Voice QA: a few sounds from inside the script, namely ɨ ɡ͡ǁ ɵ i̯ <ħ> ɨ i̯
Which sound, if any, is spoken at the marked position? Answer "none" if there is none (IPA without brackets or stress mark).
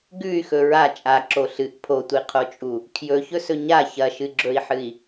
ħ